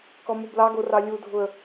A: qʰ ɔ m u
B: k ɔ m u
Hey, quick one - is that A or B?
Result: B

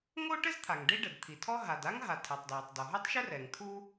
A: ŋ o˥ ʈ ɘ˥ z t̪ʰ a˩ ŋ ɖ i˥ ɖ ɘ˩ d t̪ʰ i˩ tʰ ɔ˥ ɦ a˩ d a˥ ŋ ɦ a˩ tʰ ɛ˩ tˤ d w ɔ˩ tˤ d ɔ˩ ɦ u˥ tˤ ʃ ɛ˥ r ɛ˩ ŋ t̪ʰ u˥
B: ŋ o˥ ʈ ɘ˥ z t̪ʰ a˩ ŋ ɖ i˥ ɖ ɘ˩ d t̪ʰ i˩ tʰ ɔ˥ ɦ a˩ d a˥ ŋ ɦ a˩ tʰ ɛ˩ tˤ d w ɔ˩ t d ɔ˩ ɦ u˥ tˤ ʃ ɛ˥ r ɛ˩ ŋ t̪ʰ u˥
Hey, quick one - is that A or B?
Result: A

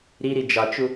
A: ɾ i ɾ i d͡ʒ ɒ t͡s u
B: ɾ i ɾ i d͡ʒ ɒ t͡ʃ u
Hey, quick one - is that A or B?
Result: B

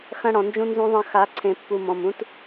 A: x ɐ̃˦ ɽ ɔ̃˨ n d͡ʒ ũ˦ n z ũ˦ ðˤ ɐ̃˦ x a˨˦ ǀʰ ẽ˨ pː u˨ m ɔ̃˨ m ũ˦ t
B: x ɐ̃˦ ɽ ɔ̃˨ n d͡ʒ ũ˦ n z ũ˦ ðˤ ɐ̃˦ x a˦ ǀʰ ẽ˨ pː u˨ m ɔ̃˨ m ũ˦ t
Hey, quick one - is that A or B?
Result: A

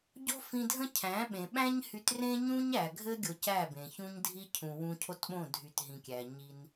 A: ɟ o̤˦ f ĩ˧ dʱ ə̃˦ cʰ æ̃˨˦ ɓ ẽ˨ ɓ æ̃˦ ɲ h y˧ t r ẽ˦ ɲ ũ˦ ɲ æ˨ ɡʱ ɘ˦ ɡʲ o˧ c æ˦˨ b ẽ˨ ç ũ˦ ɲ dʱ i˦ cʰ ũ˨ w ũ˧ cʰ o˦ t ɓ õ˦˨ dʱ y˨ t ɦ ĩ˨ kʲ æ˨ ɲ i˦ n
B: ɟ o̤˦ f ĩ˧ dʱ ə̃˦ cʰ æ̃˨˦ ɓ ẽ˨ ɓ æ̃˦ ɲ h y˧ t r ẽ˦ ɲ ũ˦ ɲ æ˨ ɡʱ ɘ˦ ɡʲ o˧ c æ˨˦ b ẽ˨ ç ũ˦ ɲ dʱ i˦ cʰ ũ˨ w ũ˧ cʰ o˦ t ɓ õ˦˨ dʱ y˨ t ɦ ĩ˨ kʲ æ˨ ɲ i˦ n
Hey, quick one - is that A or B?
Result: A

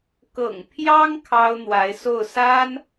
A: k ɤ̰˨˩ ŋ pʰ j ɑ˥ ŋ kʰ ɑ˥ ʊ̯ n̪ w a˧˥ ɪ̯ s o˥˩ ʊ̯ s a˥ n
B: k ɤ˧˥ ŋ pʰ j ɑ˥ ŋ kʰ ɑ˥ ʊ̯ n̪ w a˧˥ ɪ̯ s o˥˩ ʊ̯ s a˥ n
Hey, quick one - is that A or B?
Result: A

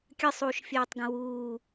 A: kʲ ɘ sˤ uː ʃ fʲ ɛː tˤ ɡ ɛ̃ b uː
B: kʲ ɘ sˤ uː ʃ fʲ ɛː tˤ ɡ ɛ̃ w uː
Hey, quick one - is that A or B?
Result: B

